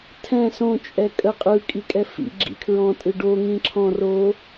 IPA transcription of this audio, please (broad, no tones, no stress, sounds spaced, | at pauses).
tʰ ɛ̃ s õ t͡ʃʼ ɛ kʼ ə qʼ ɯ kʼ i kʼ ɛ f ḭ ɡ͡ǁ ḭ kʰ ɹ ɔ̃ tʼ ɯ ɖ o ŋ ĩ ǁʰ ɔ̃ r o